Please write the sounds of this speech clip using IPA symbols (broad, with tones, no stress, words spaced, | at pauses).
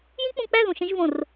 jĩ˦k͡pũ˧k͡pæ˦˨ ðũ˨ʃẽ˧ʒvõ˨r